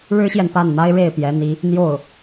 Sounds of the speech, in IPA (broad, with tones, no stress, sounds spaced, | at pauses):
ɻ ɻ̩˥ ɕ j ɛ˨ n p a˥˩ n n̪ a˥ ɪ̯ ɻ e˥˩ ɪ̯ p j ɛ˧˥ n̪ i˧˥ | n̪ j o˥˩ ʊ̯